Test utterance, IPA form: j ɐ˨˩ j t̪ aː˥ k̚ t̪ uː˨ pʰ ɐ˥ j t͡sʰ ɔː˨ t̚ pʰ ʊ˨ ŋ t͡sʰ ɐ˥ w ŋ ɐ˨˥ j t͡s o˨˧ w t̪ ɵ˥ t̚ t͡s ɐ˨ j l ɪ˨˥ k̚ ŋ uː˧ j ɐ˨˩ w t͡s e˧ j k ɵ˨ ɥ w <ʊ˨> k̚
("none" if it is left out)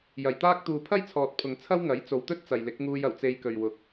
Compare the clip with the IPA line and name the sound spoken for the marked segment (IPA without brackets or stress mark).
ʊ˨˥